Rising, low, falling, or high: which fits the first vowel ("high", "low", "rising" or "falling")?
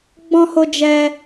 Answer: high